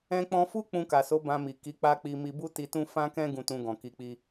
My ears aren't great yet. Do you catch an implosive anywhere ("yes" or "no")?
no